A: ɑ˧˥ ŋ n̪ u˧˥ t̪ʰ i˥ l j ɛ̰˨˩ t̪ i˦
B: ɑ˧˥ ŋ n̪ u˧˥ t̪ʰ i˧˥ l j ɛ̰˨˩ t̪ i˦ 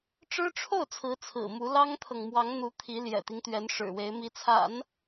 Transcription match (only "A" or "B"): B